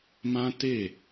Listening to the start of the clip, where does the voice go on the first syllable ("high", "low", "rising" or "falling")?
high